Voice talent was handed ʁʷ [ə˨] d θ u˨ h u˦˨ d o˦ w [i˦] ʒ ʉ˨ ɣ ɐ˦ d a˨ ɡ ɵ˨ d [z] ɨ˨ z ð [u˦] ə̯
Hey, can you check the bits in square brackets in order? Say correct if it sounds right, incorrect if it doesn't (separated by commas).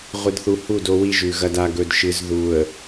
incorrect, correct, incorrect, incorrect